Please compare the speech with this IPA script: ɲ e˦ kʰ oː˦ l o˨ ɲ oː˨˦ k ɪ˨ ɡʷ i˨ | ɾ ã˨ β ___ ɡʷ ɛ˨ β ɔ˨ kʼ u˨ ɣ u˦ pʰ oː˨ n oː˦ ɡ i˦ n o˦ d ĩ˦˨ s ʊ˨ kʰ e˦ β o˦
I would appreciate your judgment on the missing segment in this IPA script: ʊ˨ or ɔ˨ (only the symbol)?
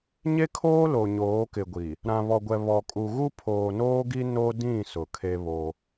ɔ˨